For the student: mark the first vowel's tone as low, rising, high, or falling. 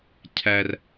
low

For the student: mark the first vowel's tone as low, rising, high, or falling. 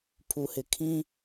low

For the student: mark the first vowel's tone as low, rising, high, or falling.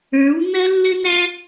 rising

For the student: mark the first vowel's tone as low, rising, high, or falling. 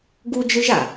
high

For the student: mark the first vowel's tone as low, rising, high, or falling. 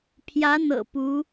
rising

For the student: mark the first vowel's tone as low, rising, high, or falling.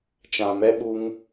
low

